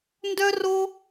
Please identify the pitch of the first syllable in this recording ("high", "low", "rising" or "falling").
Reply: high